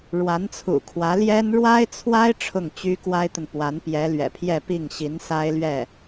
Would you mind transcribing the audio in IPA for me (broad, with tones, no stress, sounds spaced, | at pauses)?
ɻ w a˧˥ n t͡sʰ ṵ˨˩ kʰ w ä˧˥ l j ɛ˥ n ɻ w a˥ ɪ̯ t͡sʰ w a˥ ɪ̯ ʈ͡ʂʰ ʊ˥˩ ŋ t͡ɕ y˥ k w a˥ ɪ̯ t̪ ə˨ n p w a˧˥ n p j ɛ˧˥ l ɥ ɛ̰˨˩ pʰ j ɛ˥˧ p i˥˩ ŋ ɕ i˧˥ n s a˥ ɪ̯ l ɥ ɛ˥˩